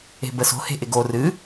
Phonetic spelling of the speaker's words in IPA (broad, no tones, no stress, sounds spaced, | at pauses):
e̤ b ə s o̤ h e̤ ʔ ɪ ɡ o r ɨ